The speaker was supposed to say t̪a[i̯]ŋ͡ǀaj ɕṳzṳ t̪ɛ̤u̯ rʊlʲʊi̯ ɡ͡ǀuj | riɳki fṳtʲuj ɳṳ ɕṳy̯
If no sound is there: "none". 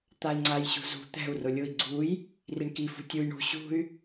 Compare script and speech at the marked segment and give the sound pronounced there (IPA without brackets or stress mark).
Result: i̯